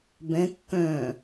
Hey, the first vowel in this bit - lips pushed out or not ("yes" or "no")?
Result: no